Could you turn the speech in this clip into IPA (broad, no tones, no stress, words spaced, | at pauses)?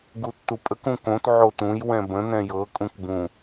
ɡutːupʼək ũkõt ʕotũj wɛ̃bə̃ nɛ̃jɤ kʼũkbũ